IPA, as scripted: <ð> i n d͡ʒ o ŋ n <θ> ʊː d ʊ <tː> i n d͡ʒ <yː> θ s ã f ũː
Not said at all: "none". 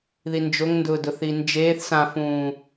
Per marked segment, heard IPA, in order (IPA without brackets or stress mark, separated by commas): ð, d, θ, eː